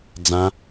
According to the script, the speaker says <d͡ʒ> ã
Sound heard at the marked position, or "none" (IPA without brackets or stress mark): d͡z